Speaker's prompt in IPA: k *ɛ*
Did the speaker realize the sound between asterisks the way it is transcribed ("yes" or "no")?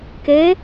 no